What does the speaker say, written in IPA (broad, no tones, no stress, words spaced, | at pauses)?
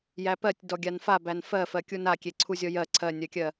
jæpɜtʲ dɔɡʲanfabæn fɜfɜ kʲunakʲe ǀʰuzʲɔjɜ ǀʰɜnʲɜkʲɜ